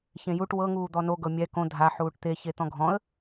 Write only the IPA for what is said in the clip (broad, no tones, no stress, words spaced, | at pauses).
çẽjuʈ wɤŋuːd̪ɔ noɡɤ mʲɛ kõ dʱaħuːʈ t̪e çet̪ɔ̃ɡʱɔ̃ə̯